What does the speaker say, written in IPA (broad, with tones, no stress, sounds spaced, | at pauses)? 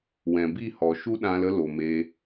w ɛ̃˨ b i˦˨ h ɔ˨ ʃ u˦ ɗ ã˧ l ə˦ l o˨ m eː˧